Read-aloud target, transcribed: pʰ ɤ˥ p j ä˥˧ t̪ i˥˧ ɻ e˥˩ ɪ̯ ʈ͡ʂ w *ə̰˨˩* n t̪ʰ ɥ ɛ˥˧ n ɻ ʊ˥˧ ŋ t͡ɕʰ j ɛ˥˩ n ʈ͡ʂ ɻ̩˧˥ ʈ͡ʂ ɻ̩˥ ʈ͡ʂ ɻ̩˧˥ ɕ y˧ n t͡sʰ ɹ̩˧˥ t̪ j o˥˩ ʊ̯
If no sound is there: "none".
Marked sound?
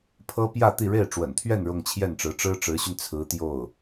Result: ə̰˨˩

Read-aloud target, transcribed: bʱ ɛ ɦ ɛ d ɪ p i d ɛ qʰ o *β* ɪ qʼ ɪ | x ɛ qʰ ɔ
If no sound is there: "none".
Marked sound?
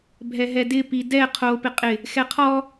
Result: p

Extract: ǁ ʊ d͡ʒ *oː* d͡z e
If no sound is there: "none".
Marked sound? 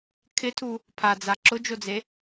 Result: o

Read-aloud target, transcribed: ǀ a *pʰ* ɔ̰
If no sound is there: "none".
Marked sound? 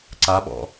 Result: ɓ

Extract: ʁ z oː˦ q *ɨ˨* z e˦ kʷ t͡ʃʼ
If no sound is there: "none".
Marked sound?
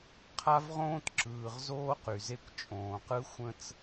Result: y˨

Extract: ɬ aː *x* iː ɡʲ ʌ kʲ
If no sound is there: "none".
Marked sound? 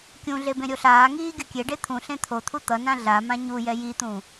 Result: ŋ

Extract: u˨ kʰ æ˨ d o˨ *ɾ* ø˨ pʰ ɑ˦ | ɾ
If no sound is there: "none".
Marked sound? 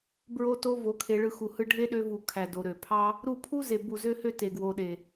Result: ɾ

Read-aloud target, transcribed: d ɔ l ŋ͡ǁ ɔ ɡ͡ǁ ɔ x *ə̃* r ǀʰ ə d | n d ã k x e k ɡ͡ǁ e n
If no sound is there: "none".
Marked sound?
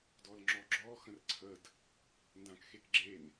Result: ə̃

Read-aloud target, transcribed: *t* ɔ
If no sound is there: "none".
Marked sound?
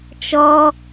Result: t͡ʃ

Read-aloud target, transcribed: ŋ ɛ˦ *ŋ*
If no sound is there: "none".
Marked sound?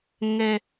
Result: none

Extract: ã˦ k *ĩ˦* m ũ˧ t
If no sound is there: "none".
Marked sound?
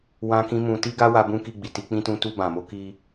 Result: ĩ˦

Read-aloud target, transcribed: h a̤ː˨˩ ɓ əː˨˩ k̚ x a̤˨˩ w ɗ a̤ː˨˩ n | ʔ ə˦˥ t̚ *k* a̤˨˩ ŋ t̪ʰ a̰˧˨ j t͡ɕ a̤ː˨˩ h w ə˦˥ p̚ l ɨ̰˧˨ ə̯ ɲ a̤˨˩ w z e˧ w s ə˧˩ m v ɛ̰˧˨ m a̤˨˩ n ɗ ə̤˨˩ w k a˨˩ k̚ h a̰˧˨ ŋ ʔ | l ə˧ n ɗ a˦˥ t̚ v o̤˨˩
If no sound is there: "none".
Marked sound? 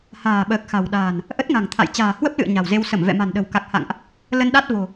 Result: ŋ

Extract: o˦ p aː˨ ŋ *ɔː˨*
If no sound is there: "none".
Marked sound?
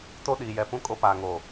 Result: oː˨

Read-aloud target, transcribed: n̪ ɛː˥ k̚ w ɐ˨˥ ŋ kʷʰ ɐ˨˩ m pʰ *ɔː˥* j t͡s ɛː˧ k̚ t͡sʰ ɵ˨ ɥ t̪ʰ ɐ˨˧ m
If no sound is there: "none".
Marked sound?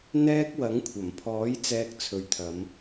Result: ɔː˨˥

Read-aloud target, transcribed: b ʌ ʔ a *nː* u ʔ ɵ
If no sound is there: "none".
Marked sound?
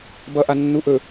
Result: nː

